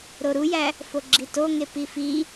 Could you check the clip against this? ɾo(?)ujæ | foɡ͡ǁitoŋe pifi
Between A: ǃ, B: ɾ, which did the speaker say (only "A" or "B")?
B